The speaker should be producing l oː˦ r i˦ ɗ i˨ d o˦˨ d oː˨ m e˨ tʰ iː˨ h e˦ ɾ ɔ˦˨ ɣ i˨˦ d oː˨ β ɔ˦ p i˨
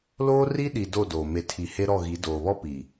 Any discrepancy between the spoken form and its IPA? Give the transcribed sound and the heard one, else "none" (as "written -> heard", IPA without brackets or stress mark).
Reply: iː˨ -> i˨